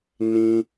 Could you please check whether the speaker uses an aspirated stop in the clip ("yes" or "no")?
no